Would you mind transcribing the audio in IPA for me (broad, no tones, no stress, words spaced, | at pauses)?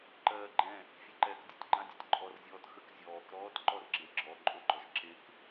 ǃɜːɡ͡ǃɛ̃ | fʲɛǃɛːkdʲətʲ ɡ͡ǃãdʲetʲǃʼɔr zʲɔːtxək zʲɔːk ɾɔːtǃɔrɡ͡ǁeɡ͡ǁɔ ǃʼoɡ͡ǃɔʃǁek